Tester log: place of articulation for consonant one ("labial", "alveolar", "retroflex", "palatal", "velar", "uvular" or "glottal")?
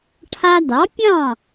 retroflex